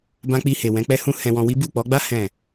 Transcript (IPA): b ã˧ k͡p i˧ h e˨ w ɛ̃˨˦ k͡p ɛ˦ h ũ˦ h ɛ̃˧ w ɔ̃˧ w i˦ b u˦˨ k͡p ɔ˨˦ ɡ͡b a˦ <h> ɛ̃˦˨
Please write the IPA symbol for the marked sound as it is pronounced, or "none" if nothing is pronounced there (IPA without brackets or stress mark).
h